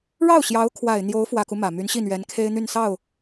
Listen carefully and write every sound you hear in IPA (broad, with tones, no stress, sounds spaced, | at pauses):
ɻ ɑ˥˩ ʊ̯ ɕ j ɑ˧˥ ʊ̯ kʰ w a˨˩ ɪ̯ n̪ j o˧˥ ʊ̯ f w ä˨˩ k u˦ m ä˨˩ m y˧˥ n ɕ i˥˩ n̪ ɥ ɛ˧˥ n kʰ e˥ ɪ̯ n̪ y˥˧ n s ɑ˥˩ ʊ̯